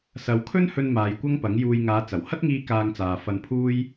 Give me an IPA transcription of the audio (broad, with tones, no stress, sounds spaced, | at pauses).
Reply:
s ɐ˨˧ w kʰ ɵ˥ n h ɵ˧ n m aː˨˧ j kʷ ɐ˥ ŋ p ɐ˨˥ ŋ j uː˧ j ŋ aː˨˧ t͡s ɐ˨˩ w h ɐ˥ t̚ ŋ iː˧ k aː˧ ŋ t͡s aː˨ f ɐ˧ n pʰ uː˥ j